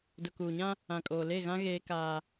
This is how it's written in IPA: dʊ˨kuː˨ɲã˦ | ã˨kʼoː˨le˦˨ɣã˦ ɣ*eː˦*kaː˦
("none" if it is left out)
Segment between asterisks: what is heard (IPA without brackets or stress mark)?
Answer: eː˦